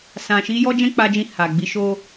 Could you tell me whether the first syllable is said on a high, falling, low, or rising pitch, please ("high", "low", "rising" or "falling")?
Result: low